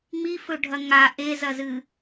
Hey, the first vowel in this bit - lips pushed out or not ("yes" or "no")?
no